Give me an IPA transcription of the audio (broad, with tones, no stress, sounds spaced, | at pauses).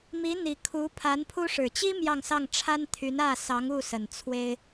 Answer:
m i˧˥ n̪ i˨˩ kʰ u˧˥ pʰ a˧˥ n pʰ u˥ ʂ ɻ̩˨˩ t͡ɕ i˥ m j ɑ˥˧ ŋ s ɑ˥˩ ŋ ʈ͡ʂʰ a˥ n t̪ʰ y˧˥ n ä˥˩ s ɑ˧˥ ŋ u˥˩ s ə˨˩ n t͡sʰ w e˥ ɪ̯